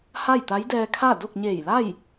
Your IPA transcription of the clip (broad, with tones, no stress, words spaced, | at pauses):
ha˥˨jt̪a˧˥jdɛː˧kʰa˥˨ do˥˨k̚ɲeː˧˩jla˥˨j